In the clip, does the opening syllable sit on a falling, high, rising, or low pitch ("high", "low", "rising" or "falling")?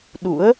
rising